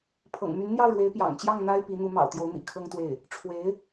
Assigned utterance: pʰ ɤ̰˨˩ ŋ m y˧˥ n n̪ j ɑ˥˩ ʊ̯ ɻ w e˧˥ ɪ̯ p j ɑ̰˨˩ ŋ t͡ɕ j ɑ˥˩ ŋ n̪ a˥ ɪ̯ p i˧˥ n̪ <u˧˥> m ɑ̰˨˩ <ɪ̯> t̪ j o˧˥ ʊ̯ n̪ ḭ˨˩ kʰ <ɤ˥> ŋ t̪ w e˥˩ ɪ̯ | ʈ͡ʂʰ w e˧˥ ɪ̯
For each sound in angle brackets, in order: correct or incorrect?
correct, incorrect: ʊ̯, correct

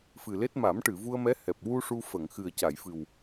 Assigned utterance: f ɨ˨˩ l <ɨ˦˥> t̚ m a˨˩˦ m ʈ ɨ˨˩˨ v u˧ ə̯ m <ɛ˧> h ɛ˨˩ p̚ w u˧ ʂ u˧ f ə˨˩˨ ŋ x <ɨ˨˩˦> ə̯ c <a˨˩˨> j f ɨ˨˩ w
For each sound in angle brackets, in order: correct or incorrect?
incorrect: e˦˥, incorrect: ɛ˧˥, incorrect: ɨ˨˩, correct

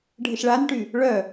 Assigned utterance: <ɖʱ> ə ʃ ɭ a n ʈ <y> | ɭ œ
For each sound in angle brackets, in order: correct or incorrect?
correct, correct

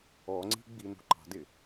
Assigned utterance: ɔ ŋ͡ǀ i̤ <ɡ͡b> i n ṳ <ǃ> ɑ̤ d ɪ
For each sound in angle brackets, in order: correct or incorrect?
correct, correct

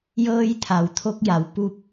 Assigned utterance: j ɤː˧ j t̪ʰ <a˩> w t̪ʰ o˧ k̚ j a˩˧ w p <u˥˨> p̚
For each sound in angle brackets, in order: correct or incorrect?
correct, incorrect: u˧

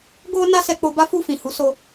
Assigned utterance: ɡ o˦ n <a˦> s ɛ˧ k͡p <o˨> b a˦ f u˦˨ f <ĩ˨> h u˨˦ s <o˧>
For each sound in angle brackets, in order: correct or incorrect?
correct, incorrect: o˧, correct, correct

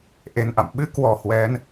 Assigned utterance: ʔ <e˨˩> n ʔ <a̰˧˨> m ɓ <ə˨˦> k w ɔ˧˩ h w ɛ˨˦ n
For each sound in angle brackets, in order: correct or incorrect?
correct, correct, incorrect: ɨ˨˦

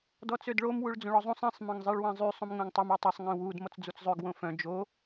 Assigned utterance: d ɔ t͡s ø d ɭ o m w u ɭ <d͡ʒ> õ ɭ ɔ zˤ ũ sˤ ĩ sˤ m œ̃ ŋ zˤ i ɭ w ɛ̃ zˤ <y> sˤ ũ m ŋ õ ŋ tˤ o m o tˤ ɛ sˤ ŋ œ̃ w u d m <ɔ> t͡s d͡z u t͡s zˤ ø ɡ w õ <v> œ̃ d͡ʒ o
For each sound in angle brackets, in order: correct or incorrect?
incorrect: d͡z, correct, correct, incorrect: f

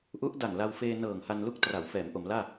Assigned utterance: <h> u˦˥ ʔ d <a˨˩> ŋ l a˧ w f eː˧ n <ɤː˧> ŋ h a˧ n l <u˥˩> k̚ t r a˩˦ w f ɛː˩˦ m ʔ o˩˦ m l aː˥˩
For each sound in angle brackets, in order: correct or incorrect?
incorrect: ʔ, correct, incorrect: ɤː˨˩, correct

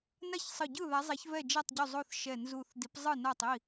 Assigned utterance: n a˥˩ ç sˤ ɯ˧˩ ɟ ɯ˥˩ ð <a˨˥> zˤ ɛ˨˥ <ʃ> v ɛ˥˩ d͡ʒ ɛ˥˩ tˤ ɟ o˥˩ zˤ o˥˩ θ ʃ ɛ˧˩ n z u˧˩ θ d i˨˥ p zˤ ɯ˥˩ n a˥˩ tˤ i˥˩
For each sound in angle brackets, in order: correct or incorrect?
correct, incorrect: ç

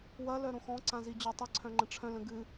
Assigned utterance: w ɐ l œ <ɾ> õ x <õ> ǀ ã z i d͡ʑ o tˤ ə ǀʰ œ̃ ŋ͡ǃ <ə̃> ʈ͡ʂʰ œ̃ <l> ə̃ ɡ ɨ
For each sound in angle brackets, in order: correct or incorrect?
correct, incorrect: ɔ̃, correct, correct

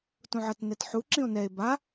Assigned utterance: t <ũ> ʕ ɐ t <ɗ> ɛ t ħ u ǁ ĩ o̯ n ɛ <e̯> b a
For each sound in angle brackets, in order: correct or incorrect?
correct, incorrect: n, correct

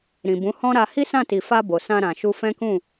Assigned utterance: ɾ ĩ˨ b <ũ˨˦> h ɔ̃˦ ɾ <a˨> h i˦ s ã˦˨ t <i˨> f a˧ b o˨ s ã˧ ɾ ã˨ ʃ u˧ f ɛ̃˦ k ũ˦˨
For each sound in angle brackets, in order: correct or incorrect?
correct, incorrect: a˧, correct

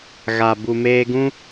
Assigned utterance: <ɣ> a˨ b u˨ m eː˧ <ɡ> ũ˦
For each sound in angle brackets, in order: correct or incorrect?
correct, correct

